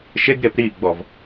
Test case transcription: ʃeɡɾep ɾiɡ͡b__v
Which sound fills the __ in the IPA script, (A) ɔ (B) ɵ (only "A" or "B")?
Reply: A